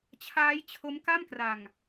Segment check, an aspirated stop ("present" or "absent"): present